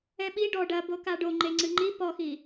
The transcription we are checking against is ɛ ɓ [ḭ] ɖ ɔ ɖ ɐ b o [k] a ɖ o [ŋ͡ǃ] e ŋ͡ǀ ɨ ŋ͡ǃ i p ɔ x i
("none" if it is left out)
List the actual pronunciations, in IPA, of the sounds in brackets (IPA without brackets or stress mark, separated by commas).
i, k, ŋ͡ǃ